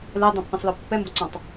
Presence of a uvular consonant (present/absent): absent